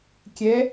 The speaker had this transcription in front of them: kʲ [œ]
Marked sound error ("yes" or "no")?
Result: yes